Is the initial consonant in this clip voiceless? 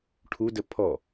yes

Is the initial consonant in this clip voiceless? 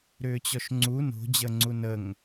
no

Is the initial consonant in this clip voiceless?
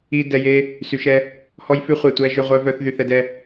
no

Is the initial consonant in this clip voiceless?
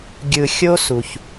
no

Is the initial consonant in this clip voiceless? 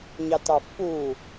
no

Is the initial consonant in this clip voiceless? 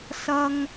yes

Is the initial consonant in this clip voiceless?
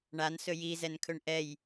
no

